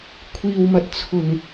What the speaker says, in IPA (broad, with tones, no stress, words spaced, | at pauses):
kʷʰiː˨wmɐ˨˥t̚ t͡sʰʊ˨˩ŋ